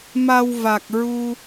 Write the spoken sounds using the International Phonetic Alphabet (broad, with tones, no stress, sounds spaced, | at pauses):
m a˧ w v a˨˩ k̚ ɹ u˧